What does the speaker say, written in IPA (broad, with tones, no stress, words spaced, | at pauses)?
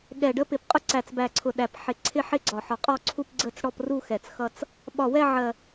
ɠɛ˨˩ɖə˥˧pɪ˨˩pqʼʊ˥˧ ǀæ˨˩t͡sbæ˨˩ǀʰʊ˨˩ɗæ˨˩p ħɪ˨˩ ǀʰɪ˥˧ħɪ˥˧ ɡ͡ǀɒ˨˩ħɒ˨˩qʼɔ˥˧ǀʰu˥˧p ɡ͡ǀə˥˧t͡sɽɔ˥˧pru˥˧xɛ˨˩t͡s xʌ˥˧t͡s | ɓɒ˨˩wɛ˥˧ ʕɜ˨˩